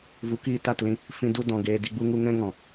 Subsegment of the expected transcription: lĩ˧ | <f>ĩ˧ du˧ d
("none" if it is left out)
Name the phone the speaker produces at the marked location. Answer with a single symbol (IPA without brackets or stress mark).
f